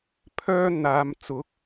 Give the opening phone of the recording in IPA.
pʰ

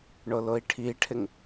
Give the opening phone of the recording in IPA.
ɳ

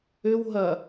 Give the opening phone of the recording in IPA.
ʏ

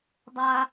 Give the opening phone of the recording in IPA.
dˤ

